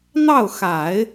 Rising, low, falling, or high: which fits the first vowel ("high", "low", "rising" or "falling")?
falling